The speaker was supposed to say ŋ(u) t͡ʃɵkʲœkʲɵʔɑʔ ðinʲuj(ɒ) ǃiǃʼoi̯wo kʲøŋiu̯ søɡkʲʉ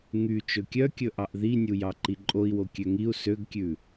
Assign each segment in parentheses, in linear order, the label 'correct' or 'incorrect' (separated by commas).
incorrect, incorrect